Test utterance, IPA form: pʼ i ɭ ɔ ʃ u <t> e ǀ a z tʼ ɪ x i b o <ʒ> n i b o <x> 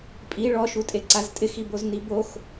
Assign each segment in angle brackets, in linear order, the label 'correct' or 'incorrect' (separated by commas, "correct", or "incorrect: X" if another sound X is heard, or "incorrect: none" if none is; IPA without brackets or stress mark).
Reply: incorrect: tʼ, incorrect: z, correct